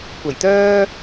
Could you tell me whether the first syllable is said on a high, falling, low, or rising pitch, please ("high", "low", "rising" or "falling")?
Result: low